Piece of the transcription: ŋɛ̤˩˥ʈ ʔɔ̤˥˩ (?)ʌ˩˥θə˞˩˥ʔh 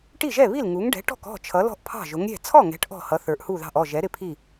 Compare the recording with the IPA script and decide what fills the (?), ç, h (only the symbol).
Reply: h